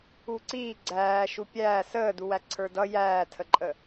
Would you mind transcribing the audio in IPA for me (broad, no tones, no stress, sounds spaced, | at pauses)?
u ǀ iː ɡ͡ǀ æː ʃ u pʲ æː s əː d u w æ ǀʰ ə˞ d ʌ j æː tʰ ə ǃʼ ə